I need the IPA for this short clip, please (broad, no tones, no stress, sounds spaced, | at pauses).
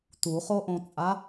t u χ o ʔ õ t͡sʼ a